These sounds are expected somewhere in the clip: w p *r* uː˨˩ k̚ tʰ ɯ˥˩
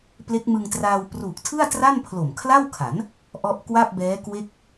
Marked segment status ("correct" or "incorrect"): correct